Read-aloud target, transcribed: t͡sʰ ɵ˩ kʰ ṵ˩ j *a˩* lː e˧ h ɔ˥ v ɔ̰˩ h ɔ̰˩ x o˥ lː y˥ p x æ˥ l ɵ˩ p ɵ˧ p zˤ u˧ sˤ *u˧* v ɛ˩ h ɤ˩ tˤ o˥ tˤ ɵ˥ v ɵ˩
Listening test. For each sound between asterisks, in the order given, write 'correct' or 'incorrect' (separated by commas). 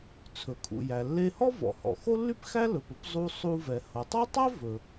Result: incorrect, correct